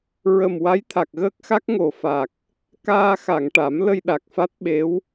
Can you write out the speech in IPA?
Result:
ɹə˨˩m wa˧˥jt̪ʰa˨˩k̚ɣəː˦˥k̚xa˦˥k̚ ŋo˨˩fa˨˩k̚ | kaː˧ xa˨˩˨ŋʈa˨˩˦m lə˧jɗa˨˩k̚fa˦˥t̚ɓe˧˥w

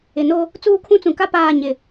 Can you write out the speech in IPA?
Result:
ɪ˨no˦ | t͡suː˦kʰũ˦t͡sũ˨ ka˦ paː˦˨ ɲɪ˨

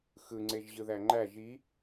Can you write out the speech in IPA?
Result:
xɯŋ͡ǀeʒʑɯ ðæŋ͡ǃæ ʒi

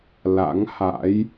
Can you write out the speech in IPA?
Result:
la̰˧˥ŋha̰˧˥j

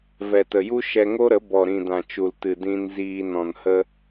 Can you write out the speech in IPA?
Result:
vɛ˨tə˨ju˦ ʃɛ˧ŋo˦ɾə˨˦ bɔ˨ɾĩ˨dã˨ t͡ʃu˨ltɨ˨ dĩ˧nziː˧ nɔ̃˨nhə˧

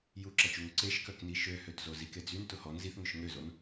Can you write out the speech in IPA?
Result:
juǁɐt͡ʃuŋʊ ǀeʃkœkni ʃøhøtzo zike d͡zyntʊ hɔn ziθŋʏʃ ŋøzon

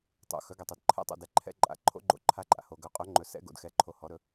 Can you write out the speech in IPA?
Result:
tˤo̰˩ xœ˩˧˩ɡɛ˩tˤœ˩d ǃʰɛ̰˩˧˩tˤo̰˩dɛ˩ ǃʰɛ̰˩˧˩ǃʼa̰˩ ǃʰo̰˩˧˩ɡ͡ǃo̰˩˧˩ǃʰa˩˧˩ǃʼa̰˩ ho˩ɡœ˩˧˩qʼɵ˩˧˩ŋ͡ǃɵ˩ sɛ̰˩˧˩ɡo̰˩dxɛ˩˧˩ ǃʰo˩˧˩hɔ˩˧˩ɾɵ˩˧˩

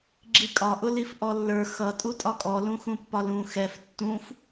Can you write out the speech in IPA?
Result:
ɡ͡ǁikʼɒʔʊlif ʔɔlːə˞ xʌ tʼutʼɒkʼɔlũ xũpːɒlũ xɛf tːũf

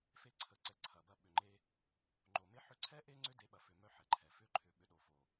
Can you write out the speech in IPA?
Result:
fe˧ ǀʰə˨ǀɛ˨ ǀʰɐ˨bɐ˦˨ ɓʏ˨ŋ͡ǃe˧ | ŋ͡ǃo˨me˦ ħʏ˧ǀʰɛ˦ ʔe˦ŋ͡ǀʏ˦ de˨˦ɓɐ˨ fʏ˨mœ˧ ħɛ˨ǃʰɛ˨ fʏ˧ǃʰʏ˨ ɓʏ˨ɗo˨fo˨

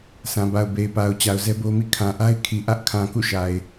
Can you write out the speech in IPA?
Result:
sʰã˨ba˨ʊ̯be˨ɪ̯pa˨ʊ̯ t͡ɕa˨ʊ̯zɛ˦bo˦mḭ˦˨ kʰã˨ʔa˦ɪ̯ kʰi˨ʔä˦ʔkʰã˨ kṵ˦˨ʃa˨ɪ̯

